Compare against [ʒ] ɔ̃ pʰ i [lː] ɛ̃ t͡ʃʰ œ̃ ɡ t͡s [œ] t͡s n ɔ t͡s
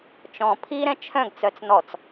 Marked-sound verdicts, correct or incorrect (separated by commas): incorrect, incorrect, correct